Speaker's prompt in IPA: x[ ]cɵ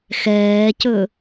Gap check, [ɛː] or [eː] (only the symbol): ɛː